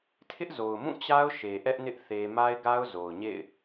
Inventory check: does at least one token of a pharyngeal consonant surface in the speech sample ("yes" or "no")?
no